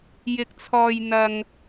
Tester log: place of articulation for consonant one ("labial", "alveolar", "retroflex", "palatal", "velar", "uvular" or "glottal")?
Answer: palatal